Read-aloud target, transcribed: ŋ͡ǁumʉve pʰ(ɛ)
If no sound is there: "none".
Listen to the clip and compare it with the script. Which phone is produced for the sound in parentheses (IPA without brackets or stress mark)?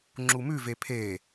e